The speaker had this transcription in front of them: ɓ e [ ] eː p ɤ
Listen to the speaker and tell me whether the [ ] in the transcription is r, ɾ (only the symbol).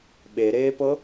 ɾ